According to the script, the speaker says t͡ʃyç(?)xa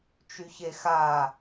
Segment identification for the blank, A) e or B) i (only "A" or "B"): A